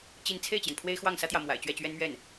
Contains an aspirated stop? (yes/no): yes